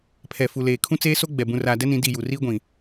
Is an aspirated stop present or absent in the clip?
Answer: present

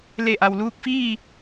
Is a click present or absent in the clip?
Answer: absent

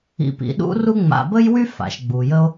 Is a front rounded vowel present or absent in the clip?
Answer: present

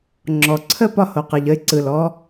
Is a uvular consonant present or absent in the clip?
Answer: present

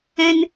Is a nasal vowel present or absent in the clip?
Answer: present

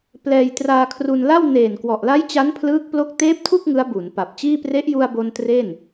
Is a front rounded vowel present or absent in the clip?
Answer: absent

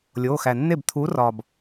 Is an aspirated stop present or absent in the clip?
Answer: present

